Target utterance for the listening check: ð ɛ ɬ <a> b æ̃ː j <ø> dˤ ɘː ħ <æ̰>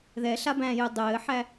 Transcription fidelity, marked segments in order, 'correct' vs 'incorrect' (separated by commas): correct, correct, incorrect